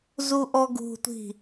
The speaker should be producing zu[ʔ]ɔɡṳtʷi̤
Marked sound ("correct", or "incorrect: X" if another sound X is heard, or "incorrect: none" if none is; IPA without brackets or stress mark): correct